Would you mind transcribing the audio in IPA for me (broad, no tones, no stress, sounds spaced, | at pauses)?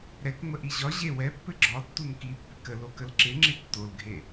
ɾ ɛ k ŋ͡m ə ʔ i ʑ ɒ ʑ e w ɛ pː ɘ ɡ͡ǁ ɒ tː u n k i pː ɪ k ə l o k ə l ǁ ɪ ŋ͡ǁ ɪ tː o l ɡʱ e